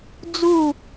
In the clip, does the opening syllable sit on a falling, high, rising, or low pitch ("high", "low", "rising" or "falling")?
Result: falling